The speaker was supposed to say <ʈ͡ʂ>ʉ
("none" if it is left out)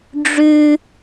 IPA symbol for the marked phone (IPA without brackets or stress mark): ɖ͡ʐ